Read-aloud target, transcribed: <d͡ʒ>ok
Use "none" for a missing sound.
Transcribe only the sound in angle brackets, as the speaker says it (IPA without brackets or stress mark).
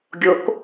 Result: ɡʲ